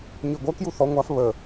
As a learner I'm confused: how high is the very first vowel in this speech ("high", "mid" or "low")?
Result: high